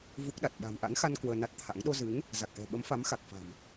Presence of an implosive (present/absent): present